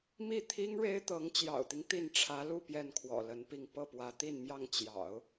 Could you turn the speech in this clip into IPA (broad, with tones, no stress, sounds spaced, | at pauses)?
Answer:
m i˥˩ t̪ʰ i˥ ŋ ɻ e˥ ɪ̯ t̪ ɤ˧˥ ŋ t͡ɕ j ɑ̰˨˩ ʊ̯ t̪ i˦ ŋ t̪ i˥˩ n ʈ͡ʂʰ ä˧˥ l u˥˧ p j ɛ˥˩ n kʰ w ɔ̰˨˩ l ə˧˥ n p i˥˧ ŋ p ɤ˥˩ p w ä˧˥ t̪ i˥˧ n m j ɑ˥˩ ŋ t͡ɕ j ɑ̰˨˩˦ ʊ̯